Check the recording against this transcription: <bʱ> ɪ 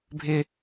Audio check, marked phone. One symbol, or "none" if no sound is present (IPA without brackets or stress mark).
bʱ